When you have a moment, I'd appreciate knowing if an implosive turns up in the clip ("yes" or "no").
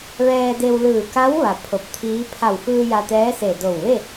no